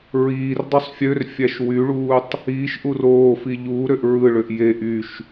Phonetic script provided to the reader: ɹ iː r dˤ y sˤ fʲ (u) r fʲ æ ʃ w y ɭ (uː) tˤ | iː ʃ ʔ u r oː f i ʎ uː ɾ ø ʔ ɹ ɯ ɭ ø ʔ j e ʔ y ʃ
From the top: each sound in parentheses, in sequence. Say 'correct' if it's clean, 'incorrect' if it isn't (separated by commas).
incorrect, correct